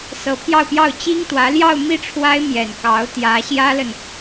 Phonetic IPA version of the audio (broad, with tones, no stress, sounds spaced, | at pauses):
s ɤ˧˥ pʰ j ɑ˥˧ ʊ̯ p j ɑ˥˩ ʊ̯ t͡ɕ i˥ ŋ t̪ w ä˧˥ l j ɑ˥˧ ʊ̯ m i˥˩ ʈ͡ʂʰ w a˥ ɪ̯ m j ɛ˨˩ n k ɑ˧˥ ʊ̯ t̪ j ä˧˥ ɕ j ä˥ l ə˨ n